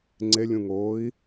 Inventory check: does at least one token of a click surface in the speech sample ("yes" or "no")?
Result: yes